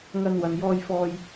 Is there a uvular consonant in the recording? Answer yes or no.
no